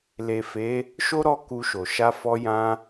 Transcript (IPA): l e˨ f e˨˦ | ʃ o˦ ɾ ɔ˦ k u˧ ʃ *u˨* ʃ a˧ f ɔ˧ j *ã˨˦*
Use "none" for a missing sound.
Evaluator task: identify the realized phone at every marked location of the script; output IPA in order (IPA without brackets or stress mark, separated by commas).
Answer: o˨, ã˧